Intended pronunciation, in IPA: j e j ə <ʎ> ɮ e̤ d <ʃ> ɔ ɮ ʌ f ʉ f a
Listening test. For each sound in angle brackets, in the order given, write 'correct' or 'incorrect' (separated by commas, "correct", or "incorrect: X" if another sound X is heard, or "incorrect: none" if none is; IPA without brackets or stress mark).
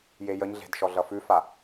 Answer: incorrect: ɲ, correct